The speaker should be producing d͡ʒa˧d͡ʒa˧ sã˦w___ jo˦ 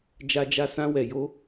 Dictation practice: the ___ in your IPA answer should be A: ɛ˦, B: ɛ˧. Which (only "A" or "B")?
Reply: B